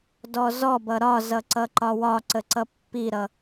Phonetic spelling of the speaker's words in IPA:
dɔzɔbʌ ɾɒzʌ ǀʌǃɒwɒǀə ǀʌpːiɾʌ

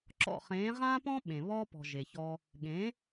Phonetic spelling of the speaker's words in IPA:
ǁɔ̰˦˨χẽː˨˦ ʁãː˦pɔ̃˦ ɓẽ˨ βɔː˦pɔ̤˨ ʒe˨çɔ˦ | ɠẽ˨˦

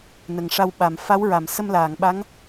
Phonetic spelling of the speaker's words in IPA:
nə˨˩ŋʂa˧wɓa˨˩m fa˧˥wɹa˨˩˨m sə˧mlaː˨˩˨ŋɓa˧˥ŋ

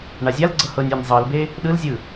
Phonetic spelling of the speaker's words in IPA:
ɳazʲalɡ͡ǀɤ hɤnʲ enʲ zˤɤlbe | ɗɯlzʲɯ

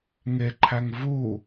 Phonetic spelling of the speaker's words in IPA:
ŋeǃʰæŋ vu

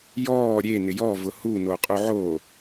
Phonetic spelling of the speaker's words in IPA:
jɔː ɾʲe nɪjɔ vʊhu noqʼuʕo

